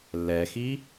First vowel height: mid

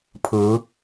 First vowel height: high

